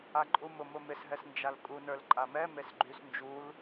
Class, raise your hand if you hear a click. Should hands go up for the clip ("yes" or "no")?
yes